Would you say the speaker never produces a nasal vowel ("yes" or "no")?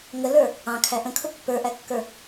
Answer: no